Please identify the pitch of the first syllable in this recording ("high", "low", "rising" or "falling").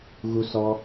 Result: high